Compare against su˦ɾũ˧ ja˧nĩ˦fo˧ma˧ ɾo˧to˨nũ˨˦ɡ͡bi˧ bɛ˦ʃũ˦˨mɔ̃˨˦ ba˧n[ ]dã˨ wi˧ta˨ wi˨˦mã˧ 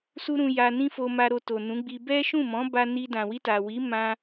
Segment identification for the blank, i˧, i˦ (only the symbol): i˧